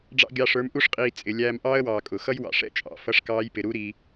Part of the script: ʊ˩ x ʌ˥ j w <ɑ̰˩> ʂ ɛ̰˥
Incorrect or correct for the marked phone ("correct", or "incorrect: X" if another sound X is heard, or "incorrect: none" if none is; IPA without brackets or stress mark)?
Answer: correct